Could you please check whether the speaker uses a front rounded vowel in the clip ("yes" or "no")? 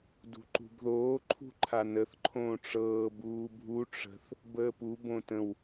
no